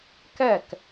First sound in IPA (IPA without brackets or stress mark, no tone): k